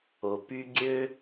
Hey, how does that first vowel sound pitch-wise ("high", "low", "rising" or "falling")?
low